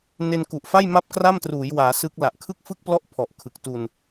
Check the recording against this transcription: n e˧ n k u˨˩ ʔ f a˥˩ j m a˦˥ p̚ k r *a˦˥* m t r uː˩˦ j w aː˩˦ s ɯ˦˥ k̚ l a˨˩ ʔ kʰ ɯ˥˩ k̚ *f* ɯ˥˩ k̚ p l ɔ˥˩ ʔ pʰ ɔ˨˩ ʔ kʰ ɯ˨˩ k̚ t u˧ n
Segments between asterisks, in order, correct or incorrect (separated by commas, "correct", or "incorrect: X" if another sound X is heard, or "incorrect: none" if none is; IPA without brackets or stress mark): incorrect: a˥˩, correct